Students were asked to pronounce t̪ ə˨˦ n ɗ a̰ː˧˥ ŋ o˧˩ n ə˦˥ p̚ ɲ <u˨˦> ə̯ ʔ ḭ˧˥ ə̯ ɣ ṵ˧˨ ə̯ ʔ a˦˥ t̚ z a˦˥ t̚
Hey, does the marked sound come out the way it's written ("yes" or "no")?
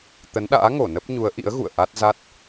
yes